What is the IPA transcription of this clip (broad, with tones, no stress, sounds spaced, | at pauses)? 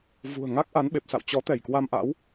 v ṳ˨˩ ə̯ ŋ a˦˥ k̚ ʔ a˨˦ n ɓ e˨˩ p̚ s a̰˧˨ w t͡ɕ ɔ˨˦ t̪ ɛ˧˩ j k w a˧ m ʔ a̰˧˥ w